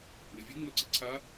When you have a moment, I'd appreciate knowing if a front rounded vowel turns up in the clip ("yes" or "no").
yes